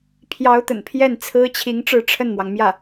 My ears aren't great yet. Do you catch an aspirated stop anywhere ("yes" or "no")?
yes